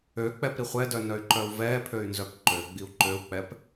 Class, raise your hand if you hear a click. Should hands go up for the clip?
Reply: yes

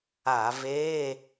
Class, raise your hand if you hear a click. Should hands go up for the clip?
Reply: no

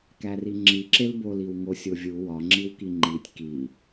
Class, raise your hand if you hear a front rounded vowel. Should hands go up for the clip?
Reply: no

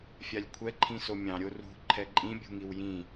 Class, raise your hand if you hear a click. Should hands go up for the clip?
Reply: yes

